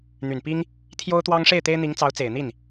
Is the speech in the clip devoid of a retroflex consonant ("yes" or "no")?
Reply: no